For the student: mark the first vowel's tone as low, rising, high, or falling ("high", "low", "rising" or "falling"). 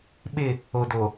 falling